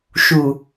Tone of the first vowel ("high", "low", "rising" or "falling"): low